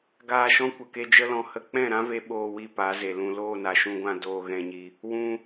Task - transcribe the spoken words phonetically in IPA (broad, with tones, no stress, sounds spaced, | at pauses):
ɡ aː˧ ʃ ɔ̃˦ kʷ ə˨ k e˧ d͡ʒ ə˦ l ɔ̃˧ h ə˦ k͡p ɛ̃˦˨ ɾ ã˦ v e˧ ɓ oː˧ w i˧ p a˨˦ z e˨ l ũ˧ l oː˦˨ n a˨ ʃ ũ˧ ɡʷ ã˧ d oː˧ ɣ ɛ̃˧ ɲ i˧ | w ũ˧